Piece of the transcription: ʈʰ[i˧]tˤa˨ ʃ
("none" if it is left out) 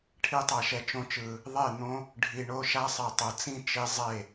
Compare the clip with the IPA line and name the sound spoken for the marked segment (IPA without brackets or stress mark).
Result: i˧